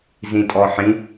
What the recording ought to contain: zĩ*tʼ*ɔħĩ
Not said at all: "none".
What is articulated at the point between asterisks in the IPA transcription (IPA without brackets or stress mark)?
tʼ